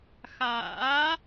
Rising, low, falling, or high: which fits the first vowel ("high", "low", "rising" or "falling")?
rising